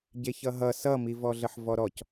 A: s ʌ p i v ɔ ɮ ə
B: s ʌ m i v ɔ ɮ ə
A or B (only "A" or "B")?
B